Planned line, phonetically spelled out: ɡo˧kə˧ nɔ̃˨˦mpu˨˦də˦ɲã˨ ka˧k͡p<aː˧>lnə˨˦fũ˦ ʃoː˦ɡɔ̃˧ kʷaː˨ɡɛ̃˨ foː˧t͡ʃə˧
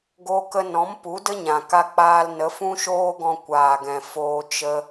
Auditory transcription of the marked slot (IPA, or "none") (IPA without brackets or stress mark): aː˧